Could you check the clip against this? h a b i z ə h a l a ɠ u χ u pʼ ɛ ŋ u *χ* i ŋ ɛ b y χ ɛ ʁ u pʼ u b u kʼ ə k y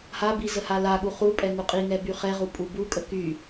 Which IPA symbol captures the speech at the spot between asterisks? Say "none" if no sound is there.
qʼ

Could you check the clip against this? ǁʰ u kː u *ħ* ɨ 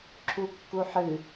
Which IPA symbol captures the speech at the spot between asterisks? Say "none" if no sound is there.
ħ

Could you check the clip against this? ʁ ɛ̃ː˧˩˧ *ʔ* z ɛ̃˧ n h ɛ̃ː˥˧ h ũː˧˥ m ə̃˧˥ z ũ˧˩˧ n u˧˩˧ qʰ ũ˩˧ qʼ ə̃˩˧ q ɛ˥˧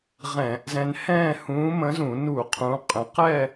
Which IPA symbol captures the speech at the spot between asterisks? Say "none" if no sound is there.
ʔ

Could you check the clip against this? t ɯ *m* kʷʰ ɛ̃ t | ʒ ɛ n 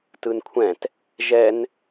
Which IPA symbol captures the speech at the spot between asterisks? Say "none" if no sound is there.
n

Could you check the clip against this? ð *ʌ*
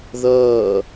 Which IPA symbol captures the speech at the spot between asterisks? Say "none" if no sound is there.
ʌː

